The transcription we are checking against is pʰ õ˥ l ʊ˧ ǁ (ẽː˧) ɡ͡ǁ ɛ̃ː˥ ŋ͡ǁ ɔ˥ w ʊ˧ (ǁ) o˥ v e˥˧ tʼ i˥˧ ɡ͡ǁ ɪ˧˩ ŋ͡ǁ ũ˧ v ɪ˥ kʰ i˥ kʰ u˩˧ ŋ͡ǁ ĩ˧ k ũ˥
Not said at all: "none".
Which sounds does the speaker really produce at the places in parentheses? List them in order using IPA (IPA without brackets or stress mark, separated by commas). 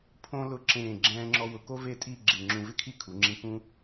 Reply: ẽː˧˩, k